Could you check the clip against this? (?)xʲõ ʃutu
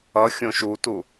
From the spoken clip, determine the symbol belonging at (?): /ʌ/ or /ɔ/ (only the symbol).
ʌ